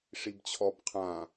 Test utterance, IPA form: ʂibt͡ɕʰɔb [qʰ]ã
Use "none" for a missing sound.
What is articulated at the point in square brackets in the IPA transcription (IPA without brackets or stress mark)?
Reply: qʰ